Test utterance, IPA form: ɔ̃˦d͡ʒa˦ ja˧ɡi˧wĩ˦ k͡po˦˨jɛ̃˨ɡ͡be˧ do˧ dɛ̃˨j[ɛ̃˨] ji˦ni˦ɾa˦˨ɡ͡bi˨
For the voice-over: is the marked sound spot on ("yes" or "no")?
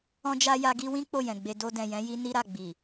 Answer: no